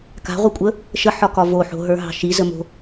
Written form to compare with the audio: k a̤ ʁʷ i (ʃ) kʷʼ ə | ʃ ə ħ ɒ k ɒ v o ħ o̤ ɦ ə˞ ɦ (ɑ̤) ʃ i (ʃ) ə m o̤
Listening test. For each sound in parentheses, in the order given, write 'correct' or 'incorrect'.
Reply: incorrect: none, correct, incorrect: z

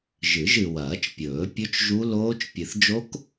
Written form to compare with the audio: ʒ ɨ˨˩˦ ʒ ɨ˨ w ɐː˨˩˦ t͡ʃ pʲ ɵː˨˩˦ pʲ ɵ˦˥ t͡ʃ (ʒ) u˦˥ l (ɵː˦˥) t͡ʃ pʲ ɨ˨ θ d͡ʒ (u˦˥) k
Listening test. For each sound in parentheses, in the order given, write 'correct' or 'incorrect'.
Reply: correct, incorrect: oː˦˥, incorrect: o˦˥

